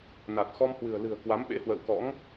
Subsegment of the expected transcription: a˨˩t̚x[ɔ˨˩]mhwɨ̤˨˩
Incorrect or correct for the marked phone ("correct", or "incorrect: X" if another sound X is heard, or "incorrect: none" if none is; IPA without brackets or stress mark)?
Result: incorrect: ɔ˧